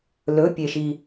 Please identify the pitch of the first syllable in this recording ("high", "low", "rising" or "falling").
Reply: rising